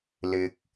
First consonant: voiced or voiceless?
voiced